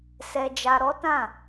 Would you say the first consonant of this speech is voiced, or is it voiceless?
voiceless